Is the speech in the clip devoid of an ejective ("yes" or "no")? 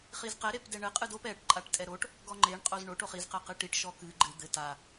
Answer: no